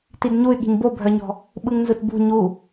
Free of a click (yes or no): yes